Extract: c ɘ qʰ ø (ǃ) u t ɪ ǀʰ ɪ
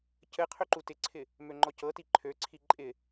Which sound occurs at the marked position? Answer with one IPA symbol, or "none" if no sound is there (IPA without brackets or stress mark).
ǃ